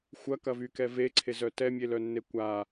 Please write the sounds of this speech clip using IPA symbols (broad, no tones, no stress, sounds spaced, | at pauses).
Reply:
xʷ ɐ k ɐ v y k ɛ v e ǀʰ e z œ t ɛ mʲ e l œ nː e kʷ a